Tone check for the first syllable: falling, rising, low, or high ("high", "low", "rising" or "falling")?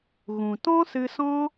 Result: low